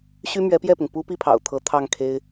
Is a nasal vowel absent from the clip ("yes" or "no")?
yes